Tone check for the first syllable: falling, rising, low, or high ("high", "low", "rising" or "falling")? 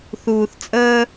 low